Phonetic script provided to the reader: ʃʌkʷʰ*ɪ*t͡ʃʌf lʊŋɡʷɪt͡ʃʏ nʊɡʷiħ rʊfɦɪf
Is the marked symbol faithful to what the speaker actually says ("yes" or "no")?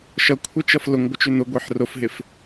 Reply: no